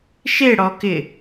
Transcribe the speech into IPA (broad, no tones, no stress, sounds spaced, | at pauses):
ʃ e ɽ ɔ k ɪ